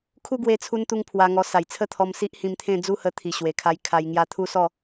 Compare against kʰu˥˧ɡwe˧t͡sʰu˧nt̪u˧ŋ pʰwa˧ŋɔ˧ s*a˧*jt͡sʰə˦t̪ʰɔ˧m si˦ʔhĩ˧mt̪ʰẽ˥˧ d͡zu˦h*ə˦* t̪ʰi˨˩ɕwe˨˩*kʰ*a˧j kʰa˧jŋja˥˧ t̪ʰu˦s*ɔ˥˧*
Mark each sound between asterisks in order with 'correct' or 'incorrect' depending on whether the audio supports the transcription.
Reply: incorrect, incorrect, correct, correct

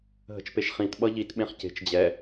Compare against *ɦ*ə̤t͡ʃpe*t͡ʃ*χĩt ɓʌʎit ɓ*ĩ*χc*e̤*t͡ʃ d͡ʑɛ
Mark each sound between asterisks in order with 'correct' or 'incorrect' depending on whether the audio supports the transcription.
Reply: correct, incorrect, incorrect, correct

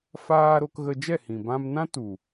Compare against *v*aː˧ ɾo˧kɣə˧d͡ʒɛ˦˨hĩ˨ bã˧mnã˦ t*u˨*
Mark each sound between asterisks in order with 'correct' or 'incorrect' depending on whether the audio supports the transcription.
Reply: incorrect, correct

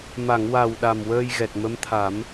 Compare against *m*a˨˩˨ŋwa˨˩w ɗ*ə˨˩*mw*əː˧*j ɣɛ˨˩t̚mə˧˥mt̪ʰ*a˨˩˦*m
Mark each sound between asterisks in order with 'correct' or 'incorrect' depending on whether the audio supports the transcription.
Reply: correct, incorrect, correct, correct

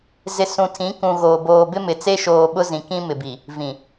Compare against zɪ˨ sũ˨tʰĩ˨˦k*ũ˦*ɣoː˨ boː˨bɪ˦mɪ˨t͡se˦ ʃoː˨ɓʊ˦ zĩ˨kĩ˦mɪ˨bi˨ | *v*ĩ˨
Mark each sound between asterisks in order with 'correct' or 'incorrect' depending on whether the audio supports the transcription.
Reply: incorrect, correct

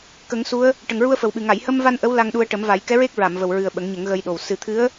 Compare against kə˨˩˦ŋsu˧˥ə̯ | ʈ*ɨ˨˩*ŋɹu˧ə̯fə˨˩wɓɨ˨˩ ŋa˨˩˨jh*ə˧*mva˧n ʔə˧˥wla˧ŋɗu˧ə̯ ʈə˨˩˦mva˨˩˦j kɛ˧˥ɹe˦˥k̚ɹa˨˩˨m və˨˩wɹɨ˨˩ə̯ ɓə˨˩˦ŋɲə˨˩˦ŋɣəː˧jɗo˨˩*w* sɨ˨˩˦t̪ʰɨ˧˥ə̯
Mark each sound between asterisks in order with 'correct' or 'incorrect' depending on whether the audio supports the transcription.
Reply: incorrect, correct, correct

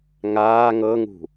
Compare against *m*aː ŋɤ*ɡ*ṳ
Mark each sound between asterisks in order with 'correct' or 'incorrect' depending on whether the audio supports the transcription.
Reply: incorrect, incorrect

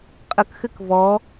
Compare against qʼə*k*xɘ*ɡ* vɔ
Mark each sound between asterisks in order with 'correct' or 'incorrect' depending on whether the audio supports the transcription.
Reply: correct, incorrect

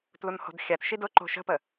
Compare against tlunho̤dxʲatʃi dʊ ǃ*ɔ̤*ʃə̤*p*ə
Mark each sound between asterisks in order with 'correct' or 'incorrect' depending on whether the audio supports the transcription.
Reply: incorrect, correct

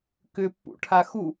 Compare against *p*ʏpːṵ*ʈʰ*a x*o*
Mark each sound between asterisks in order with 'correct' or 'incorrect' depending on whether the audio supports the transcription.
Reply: incorrect, correct, incorrect

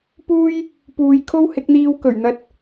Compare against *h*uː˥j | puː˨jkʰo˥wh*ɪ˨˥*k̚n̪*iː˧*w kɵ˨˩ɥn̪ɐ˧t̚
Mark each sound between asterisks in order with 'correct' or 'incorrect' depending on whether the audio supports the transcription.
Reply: incorrect, correct, correct

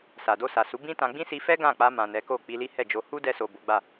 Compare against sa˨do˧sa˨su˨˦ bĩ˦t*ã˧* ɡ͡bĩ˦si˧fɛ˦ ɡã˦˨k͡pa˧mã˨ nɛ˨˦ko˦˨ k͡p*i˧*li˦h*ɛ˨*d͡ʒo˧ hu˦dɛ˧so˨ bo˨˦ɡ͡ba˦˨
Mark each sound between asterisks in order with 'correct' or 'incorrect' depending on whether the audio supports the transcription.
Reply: correct, correct, incorrect

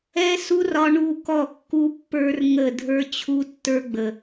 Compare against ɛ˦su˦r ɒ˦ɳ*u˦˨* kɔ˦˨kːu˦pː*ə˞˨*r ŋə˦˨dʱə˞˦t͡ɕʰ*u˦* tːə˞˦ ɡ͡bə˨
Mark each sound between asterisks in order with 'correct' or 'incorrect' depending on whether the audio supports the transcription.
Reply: correct, incorrect, correct

